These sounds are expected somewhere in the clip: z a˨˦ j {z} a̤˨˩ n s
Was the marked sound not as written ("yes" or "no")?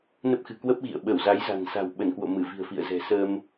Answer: no